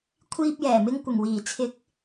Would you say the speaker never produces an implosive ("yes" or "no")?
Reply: yes